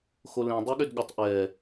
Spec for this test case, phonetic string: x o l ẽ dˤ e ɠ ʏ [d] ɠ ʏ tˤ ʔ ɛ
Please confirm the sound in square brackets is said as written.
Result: yes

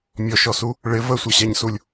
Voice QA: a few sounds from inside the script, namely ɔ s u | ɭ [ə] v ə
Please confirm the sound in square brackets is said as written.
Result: no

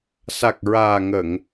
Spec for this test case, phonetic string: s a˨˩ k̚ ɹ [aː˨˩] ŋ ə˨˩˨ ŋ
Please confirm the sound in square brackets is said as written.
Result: yes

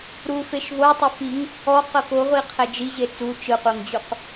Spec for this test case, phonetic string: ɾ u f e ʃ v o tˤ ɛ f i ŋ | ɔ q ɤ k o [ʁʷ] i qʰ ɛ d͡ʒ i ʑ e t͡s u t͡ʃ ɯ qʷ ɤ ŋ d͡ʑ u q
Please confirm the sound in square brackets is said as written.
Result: yes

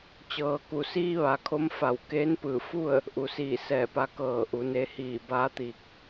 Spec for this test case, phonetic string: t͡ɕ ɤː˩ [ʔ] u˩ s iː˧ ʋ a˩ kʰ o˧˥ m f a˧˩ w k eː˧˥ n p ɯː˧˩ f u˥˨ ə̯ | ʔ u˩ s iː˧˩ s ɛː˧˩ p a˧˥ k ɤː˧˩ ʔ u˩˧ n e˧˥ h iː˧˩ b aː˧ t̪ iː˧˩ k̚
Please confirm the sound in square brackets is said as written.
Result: no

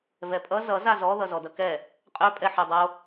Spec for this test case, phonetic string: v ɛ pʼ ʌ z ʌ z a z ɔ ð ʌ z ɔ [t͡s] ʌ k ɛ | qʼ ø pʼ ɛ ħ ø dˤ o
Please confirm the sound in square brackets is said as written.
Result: no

